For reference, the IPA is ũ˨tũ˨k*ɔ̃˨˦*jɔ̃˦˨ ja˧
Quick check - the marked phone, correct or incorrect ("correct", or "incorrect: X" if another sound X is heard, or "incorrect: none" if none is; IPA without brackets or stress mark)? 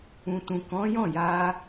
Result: correct